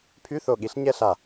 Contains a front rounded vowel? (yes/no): yes